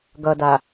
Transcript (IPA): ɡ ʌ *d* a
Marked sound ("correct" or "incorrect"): correct